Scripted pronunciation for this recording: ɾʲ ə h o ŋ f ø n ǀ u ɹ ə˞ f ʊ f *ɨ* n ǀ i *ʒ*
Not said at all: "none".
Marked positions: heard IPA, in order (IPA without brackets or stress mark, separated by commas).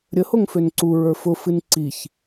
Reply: ɨ, ç